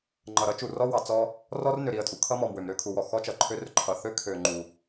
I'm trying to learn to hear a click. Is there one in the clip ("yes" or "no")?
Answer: yes